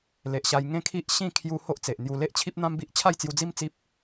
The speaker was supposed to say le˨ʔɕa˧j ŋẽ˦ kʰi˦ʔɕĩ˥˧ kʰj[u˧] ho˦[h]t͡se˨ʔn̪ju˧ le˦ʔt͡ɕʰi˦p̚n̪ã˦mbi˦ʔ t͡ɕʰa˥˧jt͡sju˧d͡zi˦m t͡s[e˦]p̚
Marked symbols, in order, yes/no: yes, no, no

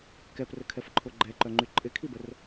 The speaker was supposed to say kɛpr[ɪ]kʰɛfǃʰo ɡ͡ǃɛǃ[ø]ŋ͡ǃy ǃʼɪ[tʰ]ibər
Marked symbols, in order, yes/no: no, no, no

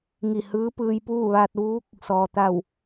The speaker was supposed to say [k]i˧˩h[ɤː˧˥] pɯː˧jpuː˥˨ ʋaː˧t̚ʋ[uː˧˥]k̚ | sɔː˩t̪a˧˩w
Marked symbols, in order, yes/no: no, no, yes

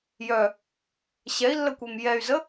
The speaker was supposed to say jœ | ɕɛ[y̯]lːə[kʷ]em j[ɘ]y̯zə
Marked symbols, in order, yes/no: no, yes, no

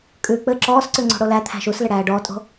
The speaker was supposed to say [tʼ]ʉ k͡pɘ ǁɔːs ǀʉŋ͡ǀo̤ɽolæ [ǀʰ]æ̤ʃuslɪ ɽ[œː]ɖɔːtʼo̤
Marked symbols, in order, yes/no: no, no, no

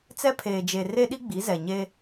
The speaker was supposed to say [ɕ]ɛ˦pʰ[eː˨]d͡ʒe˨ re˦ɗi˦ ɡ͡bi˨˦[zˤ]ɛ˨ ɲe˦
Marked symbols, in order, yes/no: no, yes, no

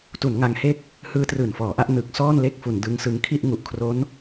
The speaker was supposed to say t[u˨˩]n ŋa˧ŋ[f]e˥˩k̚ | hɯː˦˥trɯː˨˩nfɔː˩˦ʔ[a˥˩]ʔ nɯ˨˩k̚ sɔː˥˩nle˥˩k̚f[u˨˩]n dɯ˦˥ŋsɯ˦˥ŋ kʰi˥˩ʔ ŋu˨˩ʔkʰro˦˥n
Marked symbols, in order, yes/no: no, no, yes, no

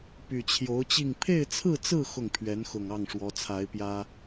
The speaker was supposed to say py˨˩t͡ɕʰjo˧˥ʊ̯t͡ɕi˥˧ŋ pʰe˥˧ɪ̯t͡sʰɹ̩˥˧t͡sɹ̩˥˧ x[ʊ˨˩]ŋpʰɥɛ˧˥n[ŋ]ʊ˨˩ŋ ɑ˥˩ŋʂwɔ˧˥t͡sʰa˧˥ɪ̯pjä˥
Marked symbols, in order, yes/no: no, no

